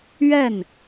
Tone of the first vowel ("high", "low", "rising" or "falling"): falling